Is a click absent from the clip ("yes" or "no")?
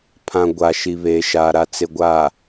yes